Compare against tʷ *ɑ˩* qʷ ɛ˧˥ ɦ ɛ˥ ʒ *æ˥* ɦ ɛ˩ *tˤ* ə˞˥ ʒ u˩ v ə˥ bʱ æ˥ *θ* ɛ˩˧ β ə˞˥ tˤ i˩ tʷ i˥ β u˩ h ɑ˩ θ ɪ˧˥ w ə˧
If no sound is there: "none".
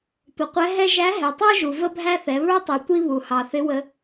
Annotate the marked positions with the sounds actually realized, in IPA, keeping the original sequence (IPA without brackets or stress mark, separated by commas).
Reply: ʌ˩, æ˧˥, tˤ, θ